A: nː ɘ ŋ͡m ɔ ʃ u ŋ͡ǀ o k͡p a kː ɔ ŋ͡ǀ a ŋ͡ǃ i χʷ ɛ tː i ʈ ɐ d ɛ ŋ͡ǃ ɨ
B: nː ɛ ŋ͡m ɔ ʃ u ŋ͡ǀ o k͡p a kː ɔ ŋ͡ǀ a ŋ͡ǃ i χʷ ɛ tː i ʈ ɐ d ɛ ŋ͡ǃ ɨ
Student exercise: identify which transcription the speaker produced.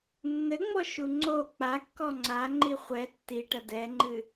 A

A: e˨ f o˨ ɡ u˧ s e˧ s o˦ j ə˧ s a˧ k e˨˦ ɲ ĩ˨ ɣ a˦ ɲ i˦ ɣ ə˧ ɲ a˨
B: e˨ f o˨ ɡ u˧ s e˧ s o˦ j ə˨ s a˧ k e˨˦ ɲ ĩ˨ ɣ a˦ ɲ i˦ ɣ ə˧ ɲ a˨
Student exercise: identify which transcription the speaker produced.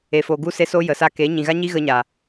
B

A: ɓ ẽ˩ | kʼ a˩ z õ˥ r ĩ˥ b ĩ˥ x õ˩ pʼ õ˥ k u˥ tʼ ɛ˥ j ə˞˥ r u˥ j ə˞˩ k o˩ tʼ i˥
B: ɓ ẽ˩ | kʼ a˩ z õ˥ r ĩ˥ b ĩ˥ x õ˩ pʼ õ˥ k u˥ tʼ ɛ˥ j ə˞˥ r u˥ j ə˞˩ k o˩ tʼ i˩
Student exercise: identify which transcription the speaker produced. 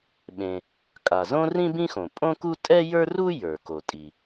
B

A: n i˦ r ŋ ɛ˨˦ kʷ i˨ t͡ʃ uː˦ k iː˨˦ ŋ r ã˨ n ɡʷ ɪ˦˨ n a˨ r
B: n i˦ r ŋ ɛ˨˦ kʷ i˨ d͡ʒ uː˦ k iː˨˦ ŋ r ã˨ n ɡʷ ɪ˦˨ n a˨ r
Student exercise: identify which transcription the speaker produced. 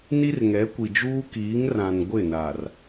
B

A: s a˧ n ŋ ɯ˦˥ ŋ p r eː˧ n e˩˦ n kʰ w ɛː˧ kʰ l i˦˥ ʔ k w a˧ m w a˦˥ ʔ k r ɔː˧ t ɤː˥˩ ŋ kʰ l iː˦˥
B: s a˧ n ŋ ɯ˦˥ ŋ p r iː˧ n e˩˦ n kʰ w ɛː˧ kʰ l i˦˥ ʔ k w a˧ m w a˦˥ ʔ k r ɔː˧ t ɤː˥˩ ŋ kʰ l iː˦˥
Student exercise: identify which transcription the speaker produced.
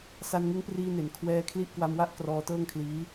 B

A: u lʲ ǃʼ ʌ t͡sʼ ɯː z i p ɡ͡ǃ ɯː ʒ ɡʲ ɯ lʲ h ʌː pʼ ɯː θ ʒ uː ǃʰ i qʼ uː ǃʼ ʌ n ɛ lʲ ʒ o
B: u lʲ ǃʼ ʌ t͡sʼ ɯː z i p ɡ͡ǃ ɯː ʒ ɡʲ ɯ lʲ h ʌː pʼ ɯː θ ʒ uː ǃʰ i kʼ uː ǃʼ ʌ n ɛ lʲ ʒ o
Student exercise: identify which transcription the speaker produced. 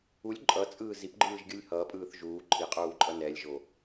A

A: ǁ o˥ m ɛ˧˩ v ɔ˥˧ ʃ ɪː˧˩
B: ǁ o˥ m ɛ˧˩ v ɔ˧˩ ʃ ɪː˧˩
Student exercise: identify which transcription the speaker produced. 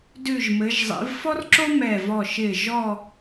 B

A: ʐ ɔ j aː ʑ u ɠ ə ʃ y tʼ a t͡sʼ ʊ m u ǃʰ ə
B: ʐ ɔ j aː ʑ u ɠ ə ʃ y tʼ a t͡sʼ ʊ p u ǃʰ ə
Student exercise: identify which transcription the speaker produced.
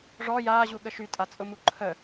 A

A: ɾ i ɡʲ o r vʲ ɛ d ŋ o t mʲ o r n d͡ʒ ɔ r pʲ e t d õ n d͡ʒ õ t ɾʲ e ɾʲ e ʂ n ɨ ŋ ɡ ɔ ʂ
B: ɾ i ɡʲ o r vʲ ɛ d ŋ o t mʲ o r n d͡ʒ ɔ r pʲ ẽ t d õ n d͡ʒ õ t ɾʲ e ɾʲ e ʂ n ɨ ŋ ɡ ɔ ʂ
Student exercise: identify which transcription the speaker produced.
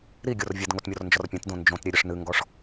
B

